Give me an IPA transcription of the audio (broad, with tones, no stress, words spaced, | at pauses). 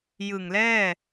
jɯ˨˩ŋlɛː˥˩